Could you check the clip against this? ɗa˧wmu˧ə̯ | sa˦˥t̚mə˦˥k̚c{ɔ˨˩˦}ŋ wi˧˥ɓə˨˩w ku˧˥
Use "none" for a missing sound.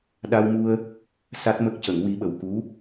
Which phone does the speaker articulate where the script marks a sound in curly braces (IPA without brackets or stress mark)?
ə˨˩˦